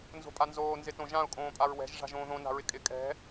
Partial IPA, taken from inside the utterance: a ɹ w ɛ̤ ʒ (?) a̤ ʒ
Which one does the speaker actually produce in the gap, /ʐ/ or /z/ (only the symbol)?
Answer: ʐ